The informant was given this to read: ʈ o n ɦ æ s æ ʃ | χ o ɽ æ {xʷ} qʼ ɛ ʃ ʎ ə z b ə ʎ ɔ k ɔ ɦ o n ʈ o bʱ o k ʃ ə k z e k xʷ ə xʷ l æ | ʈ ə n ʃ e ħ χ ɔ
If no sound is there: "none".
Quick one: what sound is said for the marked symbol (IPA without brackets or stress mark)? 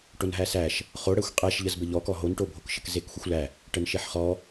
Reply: xʷ